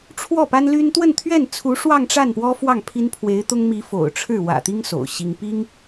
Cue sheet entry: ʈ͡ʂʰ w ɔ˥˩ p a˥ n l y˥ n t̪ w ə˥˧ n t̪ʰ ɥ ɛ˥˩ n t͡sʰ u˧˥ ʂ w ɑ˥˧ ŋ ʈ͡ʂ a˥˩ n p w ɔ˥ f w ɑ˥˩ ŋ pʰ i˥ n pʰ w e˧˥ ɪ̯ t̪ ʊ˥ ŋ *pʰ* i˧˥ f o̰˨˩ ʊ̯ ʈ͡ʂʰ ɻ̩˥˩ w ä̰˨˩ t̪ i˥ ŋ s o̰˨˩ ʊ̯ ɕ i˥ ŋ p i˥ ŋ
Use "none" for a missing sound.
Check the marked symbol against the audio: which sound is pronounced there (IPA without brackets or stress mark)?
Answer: m